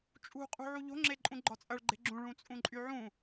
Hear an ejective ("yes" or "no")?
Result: yes